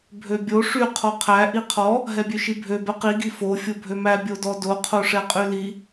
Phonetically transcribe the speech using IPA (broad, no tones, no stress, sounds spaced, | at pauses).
bʱ ø bʲ o ʂ y qʰ ɔ qʰ æ ʔ i qʰ ɔ | ɦ ɛ bʲ ø ʃ i bʱ ø b ɛ q i ɡ i f o fʲ o bʱ ø m æ bʲ o d ɔ d o qʰ o ʂ ɛ qʼ y l i